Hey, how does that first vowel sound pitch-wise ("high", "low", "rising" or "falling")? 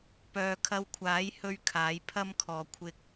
low